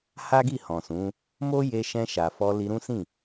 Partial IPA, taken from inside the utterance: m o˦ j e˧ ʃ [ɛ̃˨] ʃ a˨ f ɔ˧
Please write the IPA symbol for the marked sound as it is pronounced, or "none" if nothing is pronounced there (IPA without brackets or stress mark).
ɛ̃˧